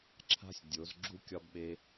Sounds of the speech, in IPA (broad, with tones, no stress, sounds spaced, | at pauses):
ǁʰ a̤˦ sʲ dʲ o˨˦ z ɡ͡ǁ u˦ kʲ ɒ˦ b ɓ e˦